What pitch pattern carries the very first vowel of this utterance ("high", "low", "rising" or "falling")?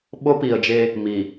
high